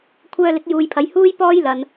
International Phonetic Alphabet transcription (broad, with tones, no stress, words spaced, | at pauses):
kʷʰœː˧lɪ˨˥k̚ juː˨jpʰɐ˨˧j huː˥j pɔː˥jlɐ˨n